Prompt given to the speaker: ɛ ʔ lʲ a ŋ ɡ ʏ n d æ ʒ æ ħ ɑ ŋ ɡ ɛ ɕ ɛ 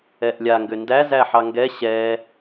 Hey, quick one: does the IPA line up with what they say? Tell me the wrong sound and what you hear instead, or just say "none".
ʒ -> z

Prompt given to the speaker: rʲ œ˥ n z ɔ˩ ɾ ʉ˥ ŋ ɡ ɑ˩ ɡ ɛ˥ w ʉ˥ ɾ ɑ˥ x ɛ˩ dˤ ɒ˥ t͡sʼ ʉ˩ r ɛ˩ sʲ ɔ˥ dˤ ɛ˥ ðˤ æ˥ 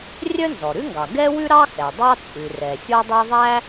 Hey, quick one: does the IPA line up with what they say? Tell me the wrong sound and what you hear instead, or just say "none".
ɒ˥ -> ɑ˥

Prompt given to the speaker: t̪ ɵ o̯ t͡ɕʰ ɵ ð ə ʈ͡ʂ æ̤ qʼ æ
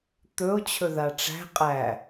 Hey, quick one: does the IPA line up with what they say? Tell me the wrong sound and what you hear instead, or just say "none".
ə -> a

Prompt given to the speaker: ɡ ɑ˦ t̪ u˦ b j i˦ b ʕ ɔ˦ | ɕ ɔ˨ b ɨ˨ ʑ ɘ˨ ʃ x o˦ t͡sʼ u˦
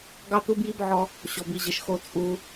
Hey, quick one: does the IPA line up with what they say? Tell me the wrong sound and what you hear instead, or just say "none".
ɨ˨ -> i˨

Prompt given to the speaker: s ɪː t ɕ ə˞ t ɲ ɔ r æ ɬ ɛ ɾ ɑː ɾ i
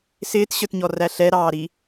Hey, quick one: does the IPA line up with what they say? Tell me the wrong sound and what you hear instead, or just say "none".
none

